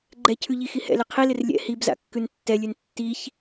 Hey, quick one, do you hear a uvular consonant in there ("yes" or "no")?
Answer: yes